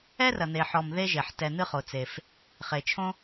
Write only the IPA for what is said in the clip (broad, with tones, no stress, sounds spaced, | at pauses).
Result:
ɛ˧ r ɐ˩ n̪ e˩ ħ ɔ˩ m ð e˧ ʒ e˩ ħ t ɛ˩ n̪ ɨ˧ χ o˩ t͡s e˩ f | χ e˩ t͡ʃʰ õ˧